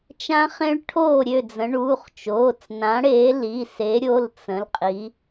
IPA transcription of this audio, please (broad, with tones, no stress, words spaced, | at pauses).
t͡ʃã˦˥χẽ˦˥ɭ ʈʰoː˥˨ɾʲø˥˨d͡zə̃˨˦ ɳuː˩˧˩χt͡ʃoː˩˧˩t͡s nã˨˦ɽeː˨˦li˩˧˩ se˨˦ɾʲo˩˧˩l t͡sə̃˨˦lqʼi˨˦